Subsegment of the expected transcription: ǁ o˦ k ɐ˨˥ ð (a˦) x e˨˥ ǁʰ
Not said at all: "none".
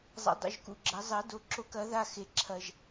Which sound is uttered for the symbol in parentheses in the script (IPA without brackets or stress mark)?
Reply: a˦